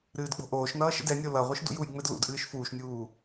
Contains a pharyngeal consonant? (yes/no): no